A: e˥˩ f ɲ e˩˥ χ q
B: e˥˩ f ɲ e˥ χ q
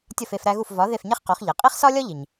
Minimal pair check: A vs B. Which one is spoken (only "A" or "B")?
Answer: B